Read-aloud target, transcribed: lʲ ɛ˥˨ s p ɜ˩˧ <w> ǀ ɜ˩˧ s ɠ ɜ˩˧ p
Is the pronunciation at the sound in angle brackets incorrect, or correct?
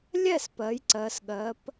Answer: incorrect: j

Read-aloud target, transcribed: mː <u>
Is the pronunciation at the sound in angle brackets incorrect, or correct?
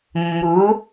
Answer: correct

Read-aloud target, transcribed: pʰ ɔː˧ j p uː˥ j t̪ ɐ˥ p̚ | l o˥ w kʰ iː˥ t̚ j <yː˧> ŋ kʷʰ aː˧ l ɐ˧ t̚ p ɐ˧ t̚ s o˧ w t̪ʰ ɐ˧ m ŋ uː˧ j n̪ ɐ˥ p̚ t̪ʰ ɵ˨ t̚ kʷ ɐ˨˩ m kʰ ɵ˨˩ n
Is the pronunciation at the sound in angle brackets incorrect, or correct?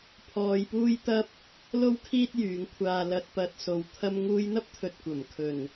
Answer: incorrect: yː˨˧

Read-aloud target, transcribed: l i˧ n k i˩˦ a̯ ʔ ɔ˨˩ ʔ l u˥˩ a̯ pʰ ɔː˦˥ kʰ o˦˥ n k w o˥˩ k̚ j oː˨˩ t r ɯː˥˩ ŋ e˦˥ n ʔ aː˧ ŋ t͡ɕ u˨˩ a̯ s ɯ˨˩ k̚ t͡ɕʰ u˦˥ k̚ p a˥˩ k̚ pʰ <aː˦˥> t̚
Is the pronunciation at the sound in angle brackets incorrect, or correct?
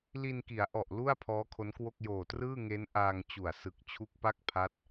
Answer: incorrect: a˦˥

